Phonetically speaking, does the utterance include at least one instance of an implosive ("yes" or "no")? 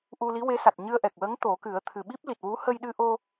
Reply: yes